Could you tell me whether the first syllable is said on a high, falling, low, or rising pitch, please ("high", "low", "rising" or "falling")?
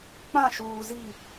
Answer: falling